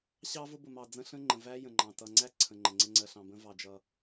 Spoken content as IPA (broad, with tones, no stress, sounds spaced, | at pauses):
ɕ ɑ˦ v ʊ˦ b ʊ˨ m ɑ˨ d͡z ə̃˦ ɬ ə̃˦ ŋ͡ǃ ə̃˨ v æ˦ j ə̃˨ ŋ͡ǃ ɑ̃˨ t ʌ˨ ŋ͡ǀ æ˦ ǀʰ ə̃˨ ŋ͡ǃ ə̃˨ ŋ͡ǀ ə˦ ŋ͡ǀ ɜ˨ ɬ ɑ̃˨ b ə̃˦ v ɑ˨ d͡ʒ ʌ˨